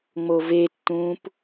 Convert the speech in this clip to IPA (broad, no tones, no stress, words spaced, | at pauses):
ŋ͡movetːũːp